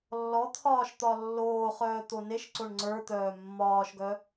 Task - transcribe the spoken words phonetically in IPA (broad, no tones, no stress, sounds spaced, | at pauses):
lː ɔ t̪ʰ ɒː ʃ t̪ ɒ lː oː χ œː t̪ o n e ʃ ǀ o ɳ ŋ͡ǀ ə˞ t̪ œː mː ɒː ʃ ɡ œ